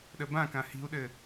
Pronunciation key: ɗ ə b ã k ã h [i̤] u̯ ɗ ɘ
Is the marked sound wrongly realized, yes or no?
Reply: no